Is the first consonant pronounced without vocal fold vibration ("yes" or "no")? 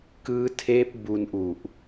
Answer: yes